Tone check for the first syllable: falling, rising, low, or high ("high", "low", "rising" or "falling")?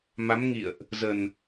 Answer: rising